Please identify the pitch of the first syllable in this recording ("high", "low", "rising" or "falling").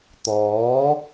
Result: rising